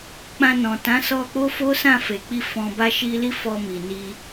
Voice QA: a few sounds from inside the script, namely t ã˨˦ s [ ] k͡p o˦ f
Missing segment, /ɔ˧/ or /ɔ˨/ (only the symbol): ɔ˧